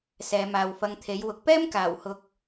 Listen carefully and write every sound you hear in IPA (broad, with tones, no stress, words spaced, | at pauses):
sɛː˨˧maː˨wfɐ˧ŋt̪ʰe˨˥j wʊ˧k̚ pɛː˥mkaː˨˩whʊ˨k̚